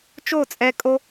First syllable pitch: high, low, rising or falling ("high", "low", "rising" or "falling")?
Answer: falling